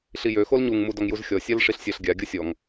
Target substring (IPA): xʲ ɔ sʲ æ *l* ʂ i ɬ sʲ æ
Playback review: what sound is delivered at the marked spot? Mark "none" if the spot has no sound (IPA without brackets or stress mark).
l